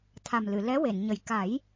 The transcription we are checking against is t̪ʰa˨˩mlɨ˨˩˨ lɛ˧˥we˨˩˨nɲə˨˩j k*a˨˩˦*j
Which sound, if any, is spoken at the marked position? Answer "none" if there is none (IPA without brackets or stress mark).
a˨˩˦